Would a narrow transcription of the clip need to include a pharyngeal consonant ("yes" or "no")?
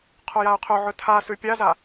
yes